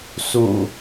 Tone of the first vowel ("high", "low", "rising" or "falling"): low